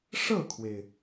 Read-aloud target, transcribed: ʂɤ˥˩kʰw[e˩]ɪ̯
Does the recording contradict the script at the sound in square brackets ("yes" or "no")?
no